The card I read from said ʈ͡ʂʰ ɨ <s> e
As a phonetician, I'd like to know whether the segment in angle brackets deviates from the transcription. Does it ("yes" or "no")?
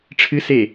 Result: no